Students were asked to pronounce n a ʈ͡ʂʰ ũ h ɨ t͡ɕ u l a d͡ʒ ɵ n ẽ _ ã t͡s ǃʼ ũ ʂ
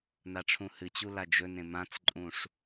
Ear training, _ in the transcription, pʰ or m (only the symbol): m